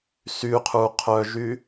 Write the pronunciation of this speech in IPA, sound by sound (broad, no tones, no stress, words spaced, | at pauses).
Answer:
syqʰuqʰœʒy